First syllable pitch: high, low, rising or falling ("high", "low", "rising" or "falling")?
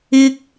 high